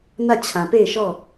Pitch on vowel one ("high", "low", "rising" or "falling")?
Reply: falling